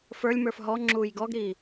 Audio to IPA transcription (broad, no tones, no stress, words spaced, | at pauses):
fə˞lʲmə˞f ɦɔŋ͡ǁuːj ɡɔɡɾiː